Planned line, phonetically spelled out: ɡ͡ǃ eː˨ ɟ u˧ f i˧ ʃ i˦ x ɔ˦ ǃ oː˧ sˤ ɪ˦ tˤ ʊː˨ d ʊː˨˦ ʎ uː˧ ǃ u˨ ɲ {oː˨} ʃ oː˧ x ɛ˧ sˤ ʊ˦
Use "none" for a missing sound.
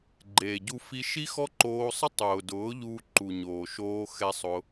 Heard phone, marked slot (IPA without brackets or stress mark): oː˨